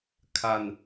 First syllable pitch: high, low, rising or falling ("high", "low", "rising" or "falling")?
low